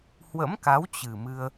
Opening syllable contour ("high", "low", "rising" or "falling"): rising